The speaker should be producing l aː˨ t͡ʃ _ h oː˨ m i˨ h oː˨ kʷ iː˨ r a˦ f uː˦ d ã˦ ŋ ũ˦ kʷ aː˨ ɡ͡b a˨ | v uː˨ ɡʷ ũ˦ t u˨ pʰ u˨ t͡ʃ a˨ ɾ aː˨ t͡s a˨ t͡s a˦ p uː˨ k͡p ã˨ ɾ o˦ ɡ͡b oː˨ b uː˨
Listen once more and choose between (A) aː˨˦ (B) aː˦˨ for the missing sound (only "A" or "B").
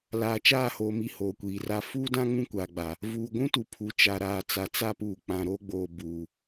B